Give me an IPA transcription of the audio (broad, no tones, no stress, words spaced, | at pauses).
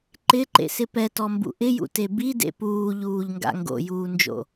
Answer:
ǃɪǃḛsɪ pɛtɔmbṵ ʔɪjṵte bidḛ puːʎuːʎŋɡa̰ ŋɡo̰juːnd͡ʒo̰